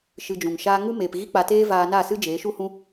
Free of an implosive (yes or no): yes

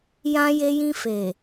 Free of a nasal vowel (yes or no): no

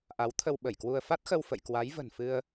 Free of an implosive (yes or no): no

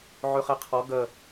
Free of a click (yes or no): yes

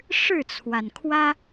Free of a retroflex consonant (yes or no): no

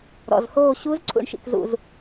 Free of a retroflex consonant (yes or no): no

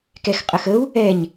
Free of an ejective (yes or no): no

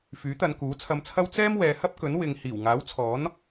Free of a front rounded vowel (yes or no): no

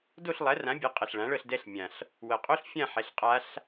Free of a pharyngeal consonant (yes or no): no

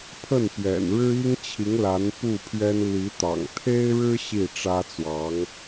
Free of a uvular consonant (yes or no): yes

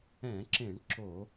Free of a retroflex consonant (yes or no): no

